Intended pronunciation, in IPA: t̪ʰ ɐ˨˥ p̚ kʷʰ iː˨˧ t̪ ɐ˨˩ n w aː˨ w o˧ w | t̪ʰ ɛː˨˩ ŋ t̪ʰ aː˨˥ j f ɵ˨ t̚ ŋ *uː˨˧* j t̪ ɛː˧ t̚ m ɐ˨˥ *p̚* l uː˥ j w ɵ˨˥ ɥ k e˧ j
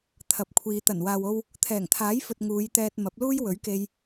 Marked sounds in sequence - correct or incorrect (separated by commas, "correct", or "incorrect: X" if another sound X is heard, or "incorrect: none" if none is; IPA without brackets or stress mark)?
correct, correct